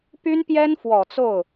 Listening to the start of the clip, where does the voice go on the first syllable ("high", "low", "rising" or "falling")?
high